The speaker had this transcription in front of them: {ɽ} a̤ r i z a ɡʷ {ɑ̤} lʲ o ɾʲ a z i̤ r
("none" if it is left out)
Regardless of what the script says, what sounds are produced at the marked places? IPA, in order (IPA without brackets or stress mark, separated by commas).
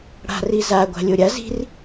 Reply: ɽ, a̤